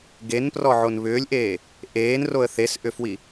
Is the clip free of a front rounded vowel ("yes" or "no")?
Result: no